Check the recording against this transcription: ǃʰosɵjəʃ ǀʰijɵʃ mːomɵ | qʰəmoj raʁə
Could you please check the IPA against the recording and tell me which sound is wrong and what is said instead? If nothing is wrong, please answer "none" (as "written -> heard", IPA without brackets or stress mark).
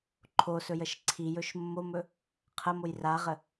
none